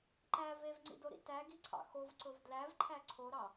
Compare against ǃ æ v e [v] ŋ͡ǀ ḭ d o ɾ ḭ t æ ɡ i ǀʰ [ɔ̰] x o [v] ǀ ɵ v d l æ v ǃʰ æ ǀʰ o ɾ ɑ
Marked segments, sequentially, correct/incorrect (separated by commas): correct, incorrect, correct